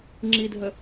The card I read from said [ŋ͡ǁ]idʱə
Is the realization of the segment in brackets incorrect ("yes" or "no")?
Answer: no